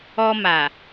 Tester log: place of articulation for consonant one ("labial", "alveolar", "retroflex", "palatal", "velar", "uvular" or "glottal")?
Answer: labial